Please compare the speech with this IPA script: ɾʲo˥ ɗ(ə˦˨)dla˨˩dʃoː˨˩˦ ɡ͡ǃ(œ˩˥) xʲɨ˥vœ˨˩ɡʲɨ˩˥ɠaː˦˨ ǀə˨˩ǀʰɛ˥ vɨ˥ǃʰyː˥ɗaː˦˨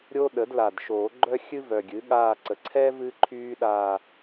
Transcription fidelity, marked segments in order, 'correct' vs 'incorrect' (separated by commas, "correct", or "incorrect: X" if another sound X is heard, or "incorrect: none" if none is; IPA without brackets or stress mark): incorrect: ə˩˥, incorrect: œ˥